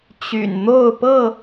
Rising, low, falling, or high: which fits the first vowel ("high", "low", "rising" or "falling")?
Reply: low